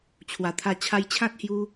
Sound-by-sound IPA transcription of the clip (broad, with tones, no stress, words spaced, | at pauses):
t͡ɕʰwa˨˩t̪ʰa˧ t͡ɕʰa˧jt͡ɕʰã˦t̚hju˧